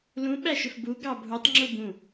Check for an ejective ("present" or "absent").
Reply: absent